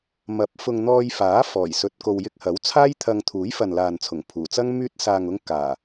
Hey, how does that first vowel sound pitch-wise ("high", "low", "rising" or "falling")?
rising